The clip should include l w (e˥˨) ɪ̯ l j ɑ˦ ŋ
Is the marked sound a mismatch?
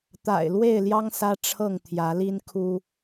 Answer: no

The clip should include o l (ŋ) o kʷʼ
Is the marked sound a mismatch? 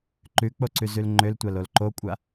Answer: yes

